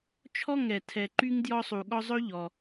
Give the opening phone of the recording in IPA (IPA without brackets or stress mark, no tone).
t͡ʃʰ